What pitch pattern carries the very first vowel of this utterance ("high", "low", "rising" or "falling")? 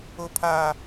high